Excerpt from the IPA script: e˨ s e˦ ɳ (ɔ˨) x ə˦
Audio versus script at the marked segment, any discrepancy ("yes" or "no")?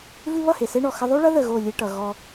no